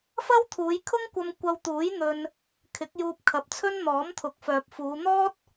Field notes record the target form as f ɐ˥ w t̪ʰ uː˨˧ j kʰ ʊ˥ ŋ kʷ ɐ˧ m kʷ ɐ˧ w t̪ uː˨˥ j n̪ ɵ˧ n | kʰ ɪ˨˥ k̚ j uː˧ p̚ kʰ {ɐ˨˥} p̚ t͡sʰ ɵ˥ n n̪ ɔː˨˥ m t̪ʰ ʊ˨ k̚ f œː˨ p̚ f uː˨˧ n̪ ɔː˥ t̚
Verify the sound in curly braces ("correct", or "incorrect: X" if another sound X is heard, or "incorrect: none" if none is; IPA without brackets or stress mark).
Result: incorrect: ɐ˨